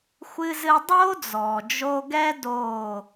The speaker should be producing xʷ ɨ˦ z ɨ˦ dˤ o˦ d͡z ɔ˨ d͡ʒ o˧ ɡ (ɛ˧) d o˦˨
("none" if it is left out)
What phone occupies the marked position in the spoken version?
ɛ˦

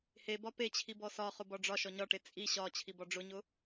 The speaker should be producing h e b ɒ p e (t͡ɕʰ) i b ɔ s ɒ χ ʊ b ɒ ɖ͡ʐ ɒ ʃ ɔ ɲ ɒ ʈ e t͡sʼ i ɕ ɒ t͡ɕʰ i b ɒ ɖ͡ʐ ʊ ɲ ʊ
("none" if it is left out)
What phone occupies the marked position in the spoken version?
t͡ɕʰ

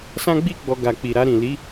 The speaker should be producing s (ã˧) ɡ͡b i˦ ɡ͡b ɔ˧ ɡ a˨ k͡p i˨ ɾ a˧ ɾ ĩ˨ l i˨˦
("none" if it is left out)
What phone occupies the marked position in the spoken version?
ã˦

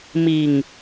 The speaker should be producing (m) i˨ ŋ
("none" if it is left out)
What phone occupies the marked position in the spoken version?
m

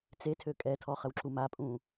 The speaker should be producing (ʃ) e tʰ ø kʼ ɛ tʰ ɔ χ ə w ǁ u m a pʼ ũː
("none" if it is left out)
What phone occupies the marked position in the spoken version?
t͡s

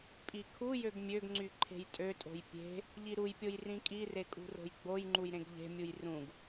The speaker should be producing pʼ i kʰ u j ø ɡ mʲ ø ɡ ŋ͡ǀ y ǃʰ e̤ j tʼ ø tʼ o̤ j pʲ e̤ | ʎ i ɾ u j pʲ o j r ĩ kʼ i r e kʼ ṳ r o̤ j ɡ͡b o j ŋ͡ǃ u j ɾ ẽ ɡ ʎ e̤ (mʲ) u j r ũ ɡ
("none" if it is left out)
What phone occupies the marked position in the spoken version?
mʲ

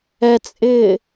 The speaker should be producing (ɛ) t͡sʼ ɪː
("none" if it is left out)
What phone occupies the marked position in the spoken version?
ɛ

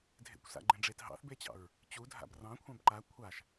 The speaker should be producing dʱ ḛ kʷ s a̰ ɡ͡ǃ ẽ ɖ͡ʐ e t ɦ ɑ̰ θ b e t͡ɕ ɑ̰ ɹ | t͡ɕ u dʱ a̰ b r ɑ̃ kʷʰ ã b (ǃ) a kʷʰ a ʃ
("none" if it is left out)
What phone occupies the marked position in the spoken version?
ǃ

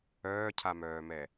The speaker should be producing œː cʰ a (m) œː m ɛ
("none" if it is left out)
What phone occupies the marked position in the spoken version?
m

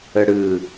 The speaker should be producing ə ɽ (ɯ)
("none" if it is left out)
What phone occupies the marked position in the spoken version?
ɯ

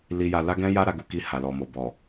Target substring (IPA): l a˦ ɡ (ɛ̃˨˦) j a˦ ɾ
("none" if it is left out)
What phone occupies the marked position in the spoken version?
ɛ̃˦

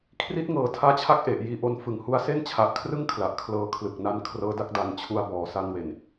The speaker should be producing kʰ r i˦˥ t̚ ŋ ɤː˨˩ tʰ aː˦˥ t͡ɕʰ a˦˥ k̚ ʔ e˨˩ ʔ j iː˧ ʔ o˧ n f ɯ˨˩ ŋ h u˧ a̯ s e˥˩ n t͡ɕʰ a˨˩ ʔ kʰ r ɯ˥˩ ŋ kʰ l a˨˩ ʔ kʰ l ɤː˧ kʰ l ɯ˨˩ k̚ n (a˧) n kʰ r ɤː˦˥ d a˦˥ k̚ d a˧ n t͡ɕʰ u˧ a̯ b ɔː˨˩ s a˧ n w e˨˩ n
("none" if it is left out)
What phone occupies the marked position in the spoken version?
a˦˥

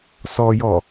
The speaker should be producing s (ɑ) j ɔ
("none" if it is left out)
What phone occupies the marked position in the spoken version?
ɔ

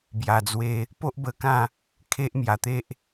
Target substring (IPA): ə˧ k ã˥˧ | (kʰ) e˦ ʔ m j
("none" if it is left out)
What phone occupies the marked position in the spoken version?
kʰ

